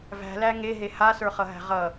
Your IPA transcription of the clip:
v æ̤ l æ ŋ e ɦ e h a s ə˞ χ ʌ ɦ æ̤ ʁ ʌ

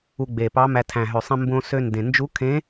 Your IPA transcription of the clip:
u˧ ɡ͡b e˨˩ p ɑ˧˥ m æ˧ tʰ æ̃˨˩ ɦ ø˨˩ sˤ ẽ˧ m b õ˧ s ø˧ n d ẽ˨˩ n d͡ʒ u˧˥ kʰ ẽ˧˥

